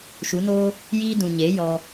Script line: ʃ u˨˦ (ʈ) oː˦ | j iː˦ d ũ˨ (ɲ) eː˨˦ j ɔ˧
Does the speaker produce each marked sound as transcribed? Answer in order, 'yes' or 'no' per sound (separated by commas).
no, yes